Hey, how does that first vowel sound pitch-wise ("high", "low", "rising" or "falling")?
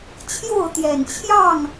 falling